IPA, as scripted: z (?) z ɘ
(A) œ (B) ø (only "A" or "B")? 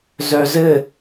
A